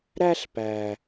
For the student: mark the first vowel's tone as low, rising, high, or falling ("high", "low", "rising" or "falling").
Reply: high